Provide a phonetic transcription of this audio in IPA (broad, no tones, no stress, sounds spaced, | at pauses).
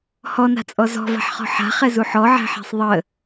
h ɔ n a̤ t͡sʼ ɔ z ɔ̤ v a̤ ħ χ ɔ̤ ħ a̤ χ ɛ z u ħ ɔ ʕ æ̤ ħ æ̤ sˤ ðˤ ə